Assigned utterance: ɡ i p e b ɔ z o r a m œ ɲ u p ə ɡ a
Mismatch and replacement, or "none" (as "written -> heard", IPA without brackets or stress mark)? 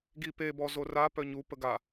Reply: m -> p